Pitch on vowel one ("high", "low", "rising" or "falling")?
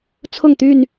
falling